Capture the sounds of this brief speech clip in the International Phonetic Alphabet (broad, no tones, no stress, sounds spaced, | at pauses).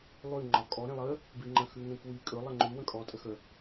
lˠ ʉ ŋ͡ǃ ɒ kʼ ɔ ɾ ẽ lˠ ə | b i ŋ͡ǃ ə̃ x ʉ ŋ ẽ k w i kʼ ɵ lˠ ə ŋ͡ǃ ʉ w ə̃ kʼ ɔ tʼ ə x ə